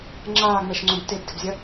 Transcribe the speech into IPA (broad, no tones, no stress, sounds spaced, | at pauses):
ŋ͡ǁ aː ŋ͡m ɛ ʃ ŋ͡ǀ õ b t e b d ɘ b zʲ ɐ